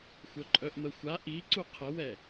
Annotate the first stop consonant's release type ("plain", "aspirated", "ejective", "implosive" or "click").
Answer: click